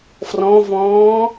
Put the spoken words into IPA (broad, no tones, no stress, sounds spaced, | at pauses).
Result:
f r ɔ̃ v ɔ̃ː